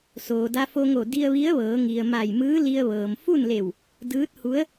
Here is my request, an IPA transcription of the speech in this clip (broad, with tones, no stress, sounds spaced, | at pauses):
s oː˩ d a˧ f o˧ ŋ o˧˩ d i˧ ə̯ ʋ i˧˥ ə̯ ʋ ɤː˩˧ ŋ i˩ ə̯ m a˧˩ j m ɯː˧˥ l i˧ ə̯ ʋ ɤː˩ m f u˥˨ n l e˧˩ w | d ɯː˧˥ t̚ h u˧˥ ə̯